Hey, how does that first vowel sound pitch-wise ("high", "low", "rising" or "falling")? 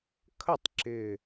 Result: falling